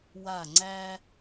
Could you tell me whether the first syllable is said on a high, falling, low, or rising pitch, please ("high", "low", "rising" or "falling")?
falling